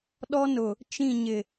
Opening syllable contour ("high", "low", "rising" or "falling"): high